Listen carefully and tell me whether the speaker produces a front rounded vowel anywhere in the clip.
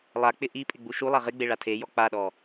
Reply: no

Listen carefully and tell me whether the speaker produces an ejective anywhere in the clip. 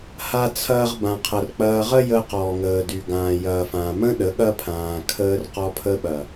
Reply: no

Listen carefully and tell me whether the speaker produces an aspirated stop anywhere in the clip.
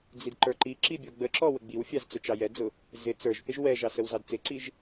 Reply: no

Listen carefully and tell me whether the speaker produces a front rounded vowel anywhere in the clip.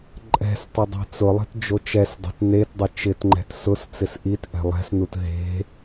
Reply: no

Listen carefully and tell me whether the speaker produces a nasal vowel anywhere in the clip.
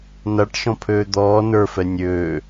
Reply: yes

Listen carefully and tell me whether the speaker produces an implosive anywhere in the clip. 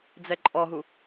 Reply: no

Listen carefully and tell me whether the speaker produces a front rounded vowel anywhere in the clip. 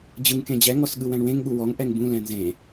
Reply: no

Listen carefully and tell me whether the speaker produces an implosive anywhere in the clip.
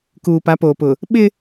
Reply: yes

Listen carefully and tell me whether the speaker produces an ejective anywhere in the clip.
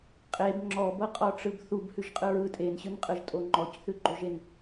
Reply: yes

